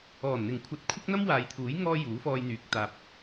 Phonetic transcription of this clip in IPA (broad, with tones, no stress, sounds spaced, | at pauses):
ɔː˨˩ n n̪ ɪ˨˩ ŋ kʷʰ ɐ˨˥ t̚ kʷʰ ɐ˥ k̚ n̪ ɐ˥ m w aː˨˧ j t̪ʰ uː˨˥ j ŋ ɔː˥ j uː˨˥ f ɔː˧ j n̪ yː˨ k̚ t̪ aː˨ p̚